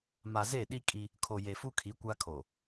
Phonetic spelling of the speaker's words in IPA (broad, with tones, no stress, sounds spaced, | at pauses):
m a˨ z e˦˨ ɗ i˦ kʼ i˦ | kʰ o˨ j e˨ f u˦ kʰ i˨˦ kʷ a˦ kʰ o˨